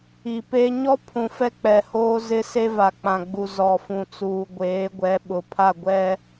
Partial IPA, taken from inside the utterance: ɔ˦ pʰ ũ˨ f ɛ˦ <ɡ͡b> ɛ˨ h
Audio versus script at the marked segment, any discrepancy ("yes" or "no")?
yes